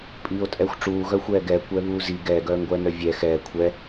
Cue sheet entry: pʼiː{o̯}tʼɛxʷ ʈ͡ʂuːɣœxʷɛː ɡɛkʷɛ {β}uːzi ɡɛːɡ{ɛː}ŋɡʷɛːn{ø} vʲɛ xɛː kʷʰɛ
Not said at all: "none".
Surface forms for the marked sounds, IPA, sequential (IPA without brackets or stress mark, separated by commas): o̯, β, œː, œ